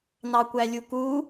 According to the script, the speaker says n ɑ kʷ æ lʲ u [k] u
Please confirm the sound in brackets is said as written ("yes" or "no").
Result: yes